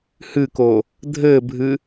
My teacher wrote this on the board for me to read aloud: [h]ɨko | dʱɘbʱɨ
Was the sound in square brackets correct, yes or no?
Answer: yes